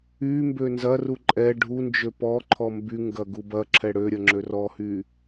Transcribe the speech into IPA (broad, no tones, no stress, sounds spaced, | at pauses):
y m b ø n z ɐ r u ǃʼ ɛ ɖʱ u n d͡ʒ ø p ɔ ǃʰ ɔ m b y ŋ ɡ ɐ ɡ u b ɐ ǁʰ ɛ ɽ ø ɾʲ ɐ ŋ͡ǁ ø r ɔ h y